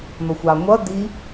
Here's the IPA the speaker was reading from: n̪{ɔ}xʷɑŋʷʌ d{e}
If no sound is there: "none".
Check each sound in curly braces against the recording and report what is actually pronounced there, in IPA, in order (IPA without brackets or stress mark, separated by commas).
ɔ, i